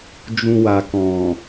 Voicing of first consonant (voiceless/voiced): voiced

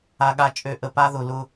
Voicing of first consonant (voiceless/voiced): voiced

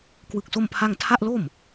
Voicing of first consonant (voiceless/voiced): voiceless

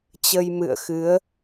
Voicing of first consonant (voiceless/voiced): voiceless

